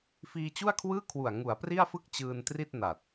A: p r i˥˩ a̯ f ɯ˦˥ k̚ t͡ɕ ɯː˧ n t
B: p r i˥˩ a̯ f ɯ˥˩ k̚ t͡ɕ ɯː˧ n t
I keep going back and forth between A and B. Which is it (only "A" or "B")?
B